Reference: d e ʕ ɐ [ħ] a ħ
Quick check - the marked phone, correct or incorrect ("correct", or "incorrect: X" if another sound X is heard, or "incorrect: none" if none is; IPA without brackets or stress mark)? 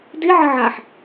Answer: incorrect: ʕ